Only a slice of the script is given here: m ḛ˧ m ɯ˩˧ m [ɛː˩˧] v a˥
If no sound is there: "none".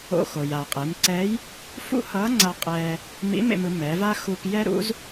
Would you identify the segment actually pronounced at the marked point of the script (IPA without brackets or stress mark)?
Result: ɛ˩˧